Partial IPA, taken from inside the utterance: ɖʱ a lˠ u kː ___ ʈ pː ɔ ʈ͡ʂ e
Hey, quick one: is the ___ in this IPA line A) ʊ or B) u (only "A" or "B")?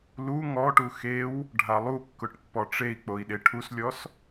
A